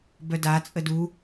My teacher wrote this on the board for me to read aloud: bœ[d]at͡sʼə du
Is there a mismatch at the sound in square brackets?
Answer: no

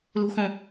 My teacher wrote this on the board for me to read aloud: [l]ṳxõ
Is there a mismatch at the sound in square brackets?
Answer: no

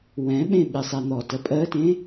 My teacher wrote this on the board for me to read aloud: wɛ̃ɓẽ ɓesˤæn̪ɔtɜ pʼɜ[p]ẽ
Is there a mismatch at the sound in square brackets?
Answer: yes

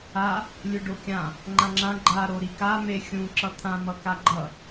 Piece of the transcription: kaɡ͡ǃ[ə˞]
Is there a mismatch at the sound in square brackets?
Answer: yes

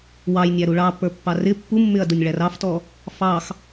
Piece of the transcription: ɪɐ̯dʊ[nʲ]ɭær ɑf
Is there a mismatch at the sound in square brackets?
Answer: no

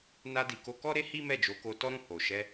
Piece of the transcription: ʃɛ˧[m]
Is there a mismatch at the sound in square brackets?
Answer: yes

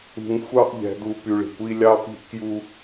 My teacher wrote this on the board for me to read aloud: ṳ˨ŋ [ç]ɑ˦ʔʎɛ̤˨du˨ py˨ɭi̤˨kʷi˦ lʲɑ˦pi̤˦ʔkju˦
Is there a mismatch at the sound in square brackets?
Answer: yes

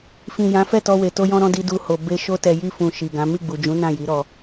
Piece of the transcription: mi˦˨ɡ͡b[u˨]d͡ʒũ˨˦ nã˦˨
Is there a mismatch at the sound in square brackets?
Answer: no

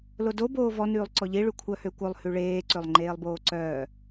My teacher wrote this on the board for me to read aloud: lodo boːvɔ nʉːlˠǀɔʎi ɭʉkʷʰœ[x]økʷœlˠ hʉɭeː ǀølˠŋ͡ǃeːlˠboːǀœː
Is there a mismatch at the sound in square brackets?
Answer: yes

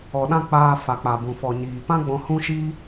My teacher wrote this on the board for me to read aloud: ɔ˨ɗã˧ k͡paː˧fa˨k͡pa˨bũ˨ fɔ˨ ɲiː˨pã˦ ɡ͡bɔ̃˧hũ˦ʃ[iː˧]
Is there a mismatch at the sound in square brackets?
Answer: yes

